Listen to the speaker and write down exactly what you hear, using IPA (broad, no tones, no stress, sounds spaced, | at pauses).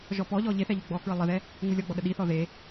ʒ ɔ p ɔ ʎ ɔ ʎ e θ ɛ ʎ u ɡ͡b ɔ k ɹ ə lˠ ə ð ɛ | ŋ u lʲ ɔ ɡ͡b ɔ ɗ ə ɗ i θ ɔ ð e